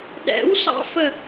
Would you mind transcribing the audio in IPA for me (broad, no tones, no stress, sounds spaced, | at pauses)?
ɗ ɛ̰ w s ɑ̰ f ə